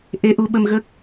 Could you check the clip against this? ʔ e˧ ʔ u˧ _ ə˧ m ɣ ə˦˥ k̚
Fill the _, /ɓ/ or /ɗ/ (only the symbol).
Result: ɓ